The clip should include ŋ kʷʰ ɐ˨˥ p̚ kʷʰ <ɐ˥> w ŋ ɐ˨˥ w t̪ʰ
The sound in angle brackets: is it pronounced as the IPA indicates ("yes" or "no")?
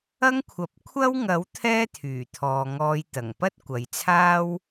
yes